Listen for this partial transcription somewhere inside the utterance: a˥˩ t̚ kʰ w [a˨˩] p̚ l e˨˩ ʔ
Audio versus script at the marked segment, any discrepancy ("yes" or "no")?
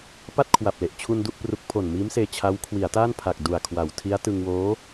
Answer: no